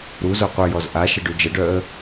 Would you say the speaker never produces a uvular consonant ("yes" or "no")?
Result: no